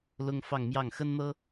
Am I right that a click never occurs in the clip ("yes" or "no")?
yes